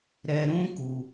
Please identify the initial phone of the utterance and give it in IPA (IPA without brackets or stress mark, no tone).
ɾ